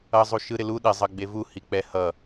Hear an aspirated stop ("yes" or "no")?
no